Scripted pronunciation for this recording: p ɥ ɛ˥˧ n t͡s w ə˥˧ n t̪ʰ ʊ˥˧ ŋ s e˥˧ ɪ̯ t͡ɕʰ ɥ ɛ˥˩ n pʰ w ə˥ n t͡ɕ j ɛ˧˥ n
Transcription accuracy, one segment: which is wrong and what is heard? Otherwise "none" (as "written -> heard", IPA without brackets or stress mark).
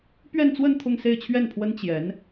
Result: none